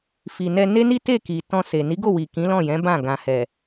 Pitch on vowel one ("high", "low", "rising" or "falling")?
low